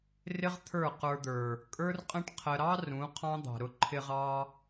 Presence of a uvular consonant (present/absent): present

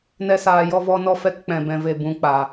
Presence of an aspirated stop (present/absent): absent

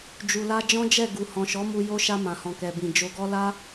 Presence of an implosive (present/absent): absent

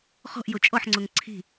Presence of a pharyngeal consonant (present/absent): present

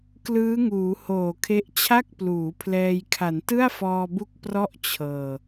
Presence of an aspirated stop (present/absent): present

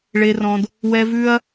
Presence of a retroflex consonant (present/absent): present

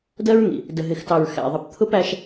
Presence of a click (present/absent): absent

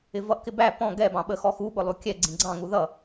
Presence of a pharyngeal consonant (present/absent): absent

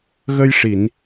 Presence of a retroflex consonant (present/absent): present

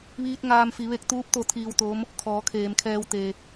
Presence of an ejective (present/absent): absent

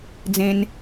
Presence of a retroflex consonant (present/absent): absent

